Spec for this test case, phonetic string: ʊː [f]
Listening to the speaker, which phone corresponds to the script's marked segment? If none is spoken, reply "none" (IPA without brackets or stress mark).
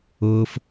f